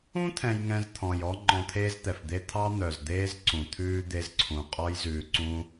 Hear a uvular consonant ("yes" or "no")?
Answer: yes